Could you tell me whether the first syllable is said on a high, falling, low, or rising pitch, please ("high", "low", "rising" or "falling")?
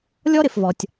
high